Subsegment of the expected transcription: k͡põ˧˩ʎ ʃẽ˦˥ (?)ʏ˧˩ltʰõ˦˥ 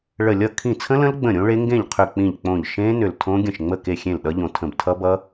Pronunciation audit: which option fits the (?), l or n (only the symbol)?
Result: n